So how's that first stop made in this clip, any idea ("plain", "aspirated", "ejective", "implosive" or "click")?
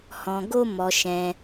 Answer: plain